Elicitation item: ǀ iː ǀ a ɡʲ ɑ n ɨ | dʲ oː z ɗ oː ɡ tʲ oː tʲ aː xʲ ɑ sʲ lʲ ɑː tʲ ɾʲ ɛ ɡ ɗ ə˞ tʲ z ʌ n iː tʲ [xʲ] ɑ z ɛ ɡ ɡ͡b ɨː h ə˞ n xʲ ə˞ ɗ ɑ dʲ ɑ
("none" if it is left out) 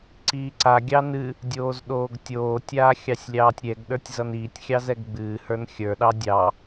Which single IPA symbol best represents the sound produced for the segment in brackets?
xʲ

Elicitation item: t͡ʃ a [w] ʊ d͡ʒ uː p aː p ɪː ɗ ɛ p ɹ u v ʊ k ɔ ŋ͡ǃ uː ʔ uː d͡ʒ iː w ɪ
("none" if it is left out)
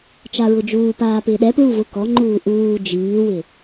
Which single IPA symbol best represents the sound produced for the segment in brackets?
ɹ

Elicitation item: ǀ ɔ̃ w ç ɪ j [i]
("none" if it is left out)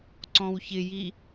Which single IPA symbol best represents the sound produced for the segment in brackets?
i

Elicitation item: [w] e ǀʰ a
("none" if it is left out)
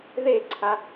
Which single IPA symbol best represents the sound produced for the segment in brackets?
ð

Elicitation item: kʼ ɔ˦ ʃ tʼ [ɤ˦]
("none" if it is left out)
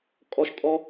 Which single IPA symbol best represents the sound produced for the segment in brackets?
ɔ˦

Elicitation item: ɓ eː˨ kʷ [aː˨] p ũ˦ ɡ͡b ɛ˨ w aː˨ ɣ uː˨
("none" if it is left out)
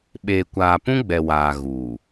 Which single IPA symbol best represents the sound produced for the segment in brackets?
aː˨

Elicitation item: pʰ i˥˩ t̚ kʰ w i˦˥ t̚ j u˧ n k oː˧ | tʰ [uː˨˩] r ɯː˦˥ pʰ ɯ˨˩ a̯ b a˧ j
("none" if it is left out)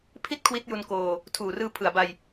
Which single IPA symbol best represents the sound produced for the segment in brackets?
uː˨˩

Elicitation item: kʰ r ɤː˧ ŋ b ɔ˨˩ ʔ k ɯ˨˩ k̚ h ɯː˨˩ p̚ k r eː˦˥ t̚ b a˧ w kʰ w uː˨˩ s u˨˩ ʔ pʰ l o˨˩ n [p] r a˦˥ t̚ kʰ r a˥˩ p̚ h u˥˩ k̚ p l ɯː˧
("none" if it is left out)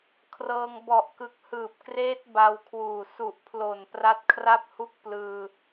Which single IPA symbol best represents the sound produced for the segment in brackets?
p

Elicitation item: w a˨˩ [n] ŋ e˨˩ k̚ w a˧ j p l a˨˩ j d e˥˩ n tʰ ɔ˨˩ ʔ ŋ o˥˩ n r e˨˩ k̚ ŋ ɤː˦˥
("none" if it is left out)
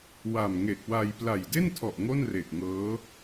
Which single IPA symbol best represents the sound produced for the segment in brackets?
m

